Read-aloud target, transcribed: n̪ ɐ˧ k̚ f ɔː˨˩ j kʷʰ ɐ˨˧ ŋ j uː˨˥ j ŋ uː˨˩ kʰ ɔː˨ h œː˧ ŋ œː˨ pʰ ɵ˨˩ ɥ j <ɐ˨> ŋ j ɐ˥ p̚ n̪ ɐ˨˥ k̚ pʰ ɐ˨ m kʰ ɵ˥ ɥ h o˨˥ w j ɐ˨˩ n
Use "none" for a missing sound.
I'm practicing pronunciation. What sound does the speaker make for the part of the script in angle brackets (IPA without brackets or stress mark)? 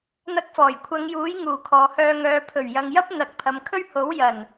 ɐ˨